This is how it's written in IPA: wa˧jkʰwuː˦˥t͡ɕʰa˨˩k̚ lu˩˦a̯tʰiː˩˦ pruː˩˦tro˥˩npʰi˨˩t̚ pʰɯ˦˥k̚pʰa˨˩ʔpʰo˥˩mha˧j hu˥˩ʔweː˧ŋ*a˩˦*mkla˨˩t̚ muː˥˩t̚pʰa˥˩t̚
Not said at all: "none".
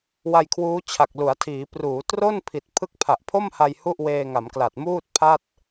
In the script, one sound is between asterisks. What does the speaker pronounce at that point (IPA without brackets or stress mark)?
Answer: a˩˦